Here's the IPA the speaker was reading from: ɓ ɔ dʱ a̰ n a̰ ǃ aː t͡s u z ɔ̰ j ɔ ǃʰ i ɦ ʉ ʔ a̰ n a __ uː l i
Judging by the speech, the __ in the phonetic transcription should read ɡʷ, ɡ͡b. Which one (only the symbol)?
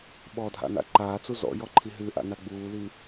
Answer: ɡ͡b